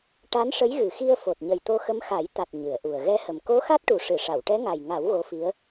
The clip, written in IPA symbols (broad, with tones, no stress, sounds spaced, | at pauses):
ʈ a˧˥ n ʂ ə˧˥ j ɣ ɨ˨˩ x i˧ ə̯ f o˨˩ t̚ ɲ ə˨˩ j t̪ o˧ x ə˧˥ m x a˨˩˦ j t̪ a˨˩ t̚ ɲ ɨ˨˩˨ ə̯ ʔ u˨˩ ə̯ ɣ ɛ˧ h ə˨˩ m k o˧˥ x a˦˥ t̚ ʈ u˨˩ ʂ ɨ˨˩˨ ʂ a˨˩˨ w ʈ ɛ˧˥ ŋ a˨˩ j ŋ a˨˩˦ w ɣ o˧˥ f i˧˥ ə̯